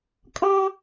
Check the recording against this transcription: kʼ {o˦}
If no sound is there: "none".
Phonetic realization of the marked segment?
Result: ɔ˦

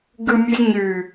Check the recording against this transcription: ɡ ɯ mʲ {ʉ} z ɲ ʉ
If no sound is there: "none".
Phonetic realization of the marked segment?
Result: ʉ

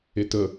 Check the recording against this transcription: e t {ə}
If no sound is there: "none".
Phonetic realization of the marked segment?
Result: ə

